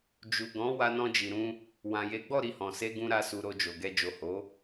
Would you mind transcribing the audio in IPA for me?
d͡ʒu˨ ɡɔ̃˨˦ wa˧nɔ̃˧d͡ʒi˨ɾũ˧ | wã˨je˨˦ɡ͡bɔ˦˨ ɾi˧hɔ̃˨se˧ɡũ˧ ɾa˦su˧ ɾo˧d͡ʒo˨ɡɛ˧ d͡ʒo˨ho˨˦

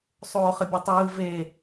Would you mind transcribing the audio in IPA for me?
sˤoːχəbʲotˤɯː ve

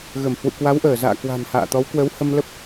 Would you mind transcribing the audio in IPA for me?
ɣə˧˩mhwṵ˧˨ kwa˨˦wʔəː˧˩za̰ː˧˨kwa̤˨˩n ha̰ː˧˨t̪ɔ˨˦w kwə˨˦whə˧mlə˦˥p̚

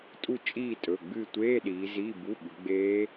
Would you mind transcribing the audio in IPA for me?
tʼu˦˨ t͡ʃʼiː˦˨tʼɵ˩˧˩ ɡ͡bɨ˦˨tʷeː˧˥˧ ɗiː˨˦ziː˧˥˧bu˧˥˧ɓʉ˨˦ ɡ͡beː˦˥

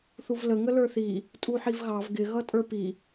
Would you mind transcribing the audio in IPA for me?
θuvlə ŋələ˞θi | tʼuħivɣɑv ɡɪ ɣʌtʼə˞pi

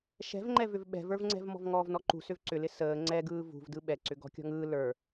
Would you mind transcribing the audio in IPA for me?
ʃɛ̤vŋ͡ǃɛvʏv ɓɛ̤və˞vŋ͡ǀɛ̤v mɔ̤vŋɔːvnɔǃṳ sʏvǀʏlɪ səː ŋ͡ǀɛ ɡɯːvṳvdɯ ɓɛǀʏ ɡɔ̤kʲɔ̤ŋɯː lə˞

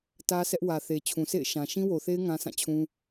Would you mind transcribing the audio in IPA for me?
tä˦sʰɛ˦ʔ wä˨θe˨ t͡ɕʰũ˨sḛ˦˨ɪ̯ ʃã˨ ʃĩ˦wo˨θe˦ɪ̯ ŋã˦sʰã˦˨t͡ɕʰũ˦

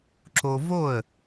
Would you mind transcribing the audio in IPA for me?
ǁo˧vo˥˩ə̯

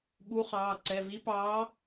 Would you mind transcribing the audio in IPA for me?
ɓu˨˦χɑː˩˧˩ ǀɛ˩˧˩ vi˨˦pɑː˨˦

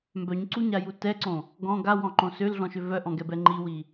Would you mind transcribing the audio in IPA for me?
mbœɲǀuɲaju tɛǀõ | ɡɔ̃ ɡawɔ̃ǃõ sølɮɔ̃ʃø vœʔɔ̃ɡɛbɛ ŋ͡ǃiwi

